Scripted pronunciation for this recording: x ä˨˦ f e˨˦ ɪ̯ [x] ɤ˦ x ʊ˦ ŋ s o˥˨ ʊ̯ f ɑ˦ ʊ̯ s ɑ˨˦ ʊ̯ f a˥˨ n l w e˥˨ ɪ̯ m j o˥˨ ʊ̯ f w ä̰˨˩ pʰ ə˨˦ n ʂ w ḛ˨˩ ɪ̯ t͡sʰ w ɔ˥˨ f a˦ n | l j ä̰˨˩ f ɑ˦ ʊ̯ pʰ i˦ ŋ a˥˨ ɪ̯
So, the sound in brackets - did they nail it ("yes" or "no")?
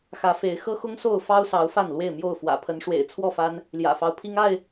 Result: yes